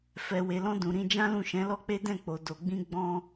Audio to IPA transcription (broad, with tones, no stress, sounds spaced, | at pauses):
f ɛ˨ w e˨ l ɔ̃˧ d ũ˨ ɾ ĩ˧ d͡ʒ ã˦ l ũ˦˨ ʃ ɛ̃˨˦ l ɔ˦ k͡p e˦ d ɛ̃˦˨ k͡p o˨ d o˨ ɡ͡b ĩ˧ ɡ͡b ɔ̃˧